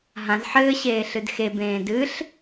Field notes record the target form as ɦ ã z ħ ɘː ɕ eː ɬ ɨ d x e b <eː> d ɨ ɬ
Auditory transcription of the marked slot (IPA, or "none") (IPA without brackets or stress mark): ẽː